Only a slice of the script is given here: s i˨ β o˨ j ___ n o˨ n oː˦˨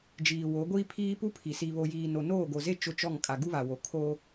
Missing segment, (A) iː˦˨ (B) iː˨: B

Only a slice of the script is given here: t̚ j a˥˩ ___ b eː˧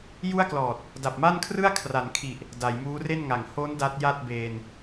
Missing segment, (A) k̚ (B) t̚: B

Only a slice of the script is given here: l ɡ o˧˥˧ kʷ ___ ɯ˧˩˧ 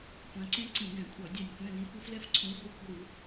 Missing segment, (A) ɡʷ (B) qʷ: A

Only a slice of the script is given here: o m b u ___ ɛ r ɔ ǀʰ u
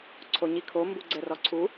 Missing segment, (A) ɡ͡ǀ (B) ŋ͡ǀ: A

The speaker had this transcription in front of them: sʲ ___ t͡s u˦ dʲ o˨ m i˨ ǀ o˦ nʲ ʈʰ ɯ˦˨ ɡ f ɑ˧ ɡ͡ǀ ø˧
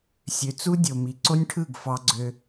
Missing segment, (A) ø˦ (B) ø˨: B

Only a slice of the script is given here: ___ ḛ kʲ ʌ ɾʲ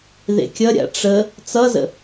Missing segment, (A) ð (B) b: A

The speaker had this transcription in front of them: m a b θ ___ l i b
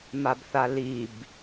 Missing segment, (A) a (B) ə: A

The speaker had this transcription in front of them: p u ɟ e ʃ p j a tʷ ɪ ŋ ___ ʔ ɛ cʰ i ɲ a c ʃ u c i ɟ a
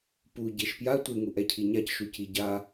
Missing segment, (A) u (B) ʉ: A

